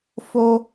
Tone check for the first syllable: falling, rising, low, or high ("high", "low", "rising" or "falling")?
high